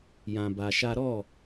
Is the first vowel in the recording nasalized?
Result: yes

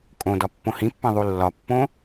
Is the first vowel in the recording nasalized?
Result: yes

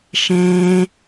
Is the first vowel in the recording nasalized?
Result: yes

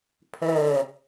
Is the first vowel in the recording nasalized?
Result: no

